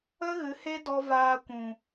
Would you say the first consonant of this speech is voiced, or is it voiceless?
voiced